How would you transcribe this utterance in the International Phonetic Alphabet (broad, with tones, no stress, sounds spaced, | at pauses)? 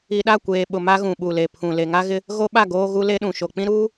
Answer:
i˨ ɗ a˦˨ kʷ eː˨ ɓ ʊ˨ m a˦ ɣ ũ˨ ɓ u˨ l e˨ pʰ ũ˨ l e˨ ŋ a˦ ɣ ɪ˦ | ɣ o˦ ɓ a˦˨ ɡ oː˦ ɣ u˦ l e˦ ɗ ũ˨ ʃ o˨ k͡p ĩ˦ ɾ uː˦